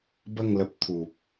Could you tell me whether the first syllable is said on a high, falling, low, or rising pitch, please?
falling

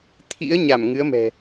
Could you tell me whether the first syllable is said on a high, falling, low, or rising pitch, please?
rising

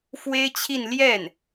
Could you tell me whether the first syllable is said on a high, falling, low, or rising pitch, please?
high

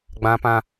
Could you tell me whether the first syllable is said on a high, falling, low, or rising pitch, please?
high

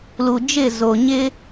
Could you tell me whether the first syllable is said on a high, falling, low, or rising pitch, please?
low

